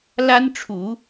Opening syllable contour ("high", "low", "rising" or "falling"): high